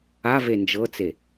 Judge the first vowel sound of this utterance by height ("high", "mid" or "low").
low